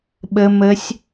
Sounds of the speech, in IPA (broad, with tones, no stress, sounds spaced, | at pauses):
ɓ ə˦˥ m ə˦˥ sʲ